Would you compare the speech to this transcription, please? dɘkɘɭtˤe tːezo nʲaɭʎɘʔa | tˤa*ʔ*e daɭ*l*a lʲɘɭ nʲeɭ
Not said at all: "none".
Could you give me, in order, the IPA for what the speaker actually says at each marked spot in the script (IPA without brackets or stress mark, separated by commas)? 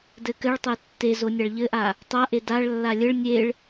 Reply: ʔ, lː